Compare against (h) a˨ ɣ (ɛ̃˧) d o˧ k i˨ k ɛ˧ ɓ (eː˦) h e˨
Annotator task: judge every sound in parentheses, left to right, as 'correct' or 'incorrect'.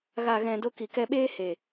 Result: incorrect, incorrect, correct

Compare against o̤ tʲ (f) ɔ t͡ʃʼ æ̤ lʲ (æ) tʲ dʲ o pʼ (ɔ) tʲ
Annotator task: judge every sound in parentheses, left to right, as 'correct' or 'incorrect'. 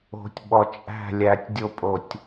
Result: incorrect, correct, incorrect

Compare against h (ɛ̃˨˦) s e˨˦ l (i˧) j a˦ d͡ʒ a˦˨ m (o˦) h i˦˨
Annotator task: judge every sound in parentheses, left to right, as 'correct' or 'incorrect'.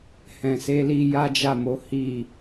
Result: incorrect, correct, incorrect

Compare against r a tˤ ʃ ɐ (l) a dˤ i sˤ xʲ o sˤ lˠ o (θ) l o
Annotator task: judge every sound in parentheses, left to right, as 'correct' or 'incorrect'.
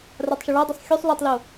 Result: incorrect, incorrect

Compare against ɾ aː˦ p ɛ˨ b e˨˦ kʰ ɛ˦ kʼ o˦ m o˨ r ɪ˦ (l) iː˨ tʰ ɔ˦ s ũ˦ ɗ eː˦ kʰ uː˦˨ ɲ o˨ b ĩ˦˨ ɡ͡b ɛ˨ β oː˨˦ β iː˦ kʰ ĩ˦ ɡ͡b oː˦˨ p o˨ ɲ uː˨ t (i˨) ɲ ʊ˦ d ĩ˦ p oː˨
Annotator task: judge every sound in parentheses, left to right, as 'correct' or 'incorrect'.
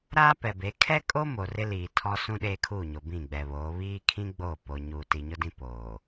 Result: correct, correct

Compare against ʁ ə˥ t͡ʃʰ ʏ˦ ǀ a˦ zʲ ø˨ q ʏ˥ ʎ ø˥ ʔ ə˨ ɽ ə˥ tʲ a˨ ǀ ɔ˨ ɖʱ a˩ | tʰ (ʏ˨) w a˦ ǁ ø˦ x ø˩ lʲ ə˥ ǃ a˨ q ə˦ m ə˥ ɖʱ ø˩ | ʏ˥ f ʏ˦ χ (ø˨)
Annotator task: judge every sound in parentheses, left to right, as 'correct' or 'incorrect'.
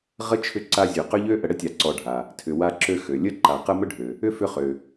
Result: correct, correct

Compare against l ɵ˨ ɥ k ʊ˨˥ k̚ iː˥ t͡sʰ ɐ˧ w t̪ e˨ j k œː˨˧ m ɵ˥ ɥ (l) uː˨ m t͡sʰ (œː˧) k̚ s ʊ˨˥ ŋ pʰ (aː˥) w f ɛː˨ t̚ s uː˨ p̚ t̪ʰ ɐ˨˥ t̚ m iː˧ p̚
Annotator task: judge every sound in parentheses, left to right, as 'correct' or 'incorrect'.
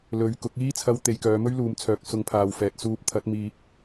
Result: correct, incorrect, incorrect

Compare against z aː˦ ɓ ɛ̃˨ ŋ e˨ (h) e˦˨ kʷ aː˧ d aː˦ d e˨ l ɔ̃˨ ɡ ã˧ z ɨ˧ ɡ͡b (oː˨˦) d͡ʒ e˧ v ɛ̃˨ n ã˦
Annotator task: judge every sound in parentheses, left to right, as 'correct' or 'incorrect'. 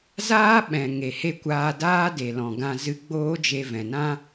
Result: correct, incorrect

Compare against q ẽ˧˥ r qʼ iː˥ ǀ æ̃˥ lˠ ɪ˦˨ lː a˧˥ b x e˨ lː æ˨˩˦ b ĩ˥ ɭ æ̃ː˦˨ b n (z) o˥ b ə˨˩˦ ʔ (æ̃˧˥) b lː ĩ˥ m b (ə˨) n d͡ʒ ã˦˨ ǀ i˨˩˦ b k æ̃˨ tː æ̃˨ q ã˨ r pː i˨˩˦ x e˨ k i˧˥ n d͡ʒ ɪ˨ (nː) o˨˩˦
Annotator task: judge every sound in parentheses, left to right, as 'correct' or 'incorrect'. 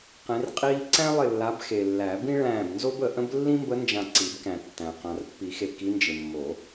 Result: correct, incorrect, incorrect, incorrect

